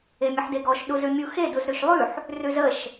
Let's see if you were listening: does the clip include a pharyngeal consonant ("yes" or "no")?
yes